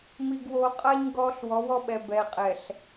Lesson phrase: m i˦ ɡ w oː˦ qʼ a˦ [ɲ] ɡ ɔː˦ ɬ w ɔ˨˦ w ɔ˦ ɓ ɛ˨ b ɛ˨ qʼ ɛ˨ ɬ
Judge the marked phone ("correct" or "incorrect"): correct